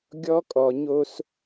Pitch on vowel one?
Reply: high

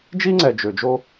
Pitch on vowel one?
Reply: high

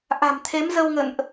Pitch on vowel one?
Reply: low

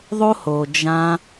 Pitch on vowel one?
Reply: high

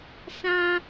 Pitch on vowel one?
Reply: high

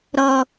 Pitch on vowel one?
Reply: low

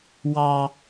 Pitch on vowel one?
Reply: high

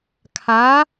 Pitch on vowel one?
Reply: rising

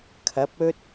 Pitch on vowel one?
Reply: rising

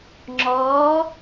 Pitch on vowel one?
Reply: rising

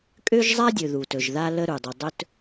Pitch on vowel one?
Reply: high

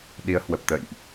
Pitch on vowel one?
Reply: rising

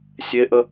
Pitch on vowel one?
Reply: high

